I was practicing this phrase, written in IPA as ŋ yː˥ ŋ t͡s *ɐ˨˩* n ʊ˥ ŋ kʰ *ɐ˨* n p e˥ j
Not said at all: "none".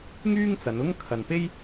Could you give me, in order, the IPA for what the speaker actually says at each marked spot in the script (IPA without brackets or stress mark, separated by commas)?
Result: ɐ˨˧, ɐ˨